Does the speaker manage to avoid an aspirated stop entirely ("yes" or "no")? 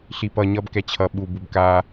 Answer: no